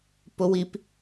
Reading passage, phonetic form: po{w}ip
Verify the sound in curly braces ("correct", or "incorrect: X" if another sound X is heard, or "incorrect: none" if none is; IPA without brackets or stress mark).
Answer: correct